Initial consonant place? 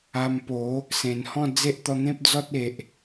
labial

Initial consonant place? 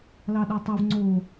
alveolar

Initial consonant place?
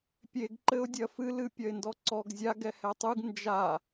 labial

